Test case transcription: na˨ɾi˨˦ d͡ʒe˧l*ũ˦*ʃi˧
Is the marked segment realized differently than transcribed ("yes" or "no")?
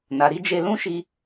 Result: no